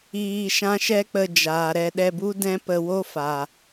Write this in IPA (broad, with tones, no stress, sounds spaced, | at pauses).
iː˧ ʃ ã˦ ʃ ɛ˦ k͡p ə˧ d͡ʒ aː˨ ɾ ɛ˧ ɗ ɛ˧ b u˦ d ɛ̃˦ p ə˧ w o˦ f a˨